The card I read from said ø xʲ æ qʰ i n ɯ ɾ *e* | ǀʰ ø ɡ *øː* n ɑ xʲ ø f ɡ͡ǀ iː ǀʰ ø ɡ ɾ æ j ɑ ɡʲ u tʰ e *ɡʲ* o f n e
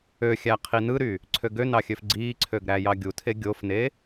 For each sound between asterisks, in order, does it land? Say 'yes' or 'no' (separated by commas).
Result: no, no, yes